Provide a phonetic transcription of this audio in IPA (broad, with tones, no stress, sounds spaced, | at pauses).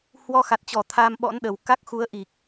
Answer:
h w ɔ˧ x a˨˩ t̚ t͡ɕ ɔ˧˩ t̪ʰ a˧ m ɓ ɔ̰˧˥ n ɗ ə˨˩ w k a˦˥ k̚ x u˨˦ ə̯ ʔ i˨˩ k̚